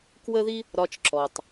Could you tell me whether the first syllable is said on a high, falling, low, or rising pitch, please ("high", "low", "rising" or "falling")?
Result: high